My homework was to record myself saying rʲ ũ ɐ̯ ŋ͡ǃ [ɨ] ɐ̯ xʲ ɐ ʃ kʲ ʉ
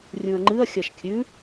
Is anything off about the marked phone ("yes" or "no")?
no